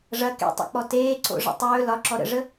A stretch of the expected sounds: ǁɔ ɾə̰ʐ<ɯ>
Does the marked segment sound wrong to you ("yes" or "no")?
yes